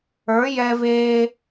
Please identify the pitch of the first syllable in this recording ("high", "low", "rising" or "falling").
rising